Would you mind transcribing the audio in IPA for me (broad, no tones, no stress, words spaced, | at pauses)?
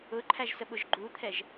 ʊǃʰæʒsəɓʊʒ ɡ͡ǃut̪ʰɛʒ